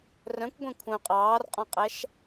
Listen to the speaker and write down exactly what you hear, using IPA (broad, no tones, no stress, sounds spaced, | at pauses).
r œ̃ kʷ ɡʷ ẽ kʷʰ œ̃ qʼ ɑː r qʼ ɔ̃ qʼ æ ʃ